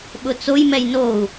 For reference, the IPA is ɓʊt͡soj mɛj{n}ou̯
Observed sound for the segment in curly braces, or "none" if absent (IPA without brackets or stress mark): n